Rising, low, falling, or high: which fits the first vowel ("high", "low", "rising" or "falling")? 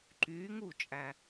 rising